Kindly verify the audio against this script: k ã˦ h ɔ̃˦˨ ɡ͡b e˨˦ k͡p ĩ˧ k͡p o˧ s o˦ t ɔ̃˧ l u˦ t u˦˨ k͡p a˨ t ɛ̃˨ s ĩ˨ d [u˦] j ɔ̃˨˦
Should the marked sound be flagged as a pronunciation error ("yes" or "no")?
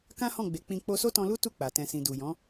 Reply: yes